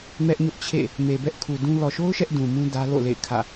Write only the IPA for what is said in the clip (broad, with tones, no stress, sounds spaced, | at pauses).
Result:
m ɛ˦ ʔ ɲ ʊ˦ ʔ t͡ɕʰ ḛ˦˨ | m e˨ b ɛ˦ ʔ kʰ u˨ d ũ˦ l ɔ˨ ʃ o˦ ʊ̯ ʃ ɛ˦ ʔ d ũ˨ m ũ˦ d ä˦ l o̰˦˨ l ḛ˦˨ ɪ̯ kʰ ä̰˦˨